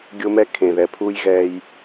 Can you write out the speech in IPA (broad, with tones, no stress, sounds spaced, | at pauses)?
ɡʲ o˦ m ɛː˦ kʰ ẽː˨ ð ɛː˨ pʰ uː˦ j ɣ ɛː˦ j